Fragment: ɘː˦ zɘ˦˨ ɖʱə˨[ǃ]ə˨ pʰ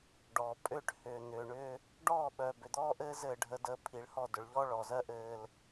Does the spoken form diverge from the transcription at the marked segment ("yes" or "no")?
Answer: yes